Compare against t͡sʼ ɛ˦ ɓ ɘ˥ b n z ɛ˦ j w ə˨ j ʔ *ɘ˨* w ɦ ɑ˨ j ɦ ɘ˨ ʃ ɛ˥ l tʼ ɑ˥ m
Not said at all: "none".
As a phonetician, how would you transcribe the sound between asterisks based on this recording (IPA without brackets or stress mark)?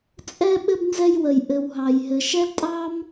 ɘ˨